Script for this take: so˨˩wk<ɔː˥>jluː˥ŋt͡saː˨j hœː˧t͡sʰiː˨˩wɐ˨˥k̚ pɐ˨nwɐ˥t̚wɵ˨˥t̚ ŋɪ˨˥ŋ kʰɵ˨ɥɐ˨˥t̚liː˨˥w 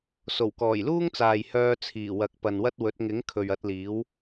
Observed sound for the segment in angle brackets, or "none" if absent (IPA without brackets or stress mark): ɔː˨˩